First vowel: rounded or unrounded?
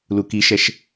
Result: rounded